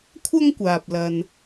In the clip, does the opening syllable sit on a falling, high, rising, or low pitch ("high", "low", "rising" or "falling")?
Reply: high